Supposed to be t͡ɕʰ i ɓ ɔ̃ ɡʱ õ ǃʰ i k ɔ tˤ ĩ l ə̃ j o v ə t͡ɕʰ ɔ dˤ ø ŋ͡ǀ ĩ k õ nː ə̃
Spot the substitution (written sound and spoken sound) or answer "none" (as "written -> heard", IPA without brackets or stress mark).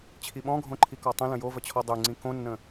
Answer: none